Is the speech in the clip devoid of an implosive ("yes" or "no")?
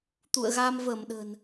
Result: no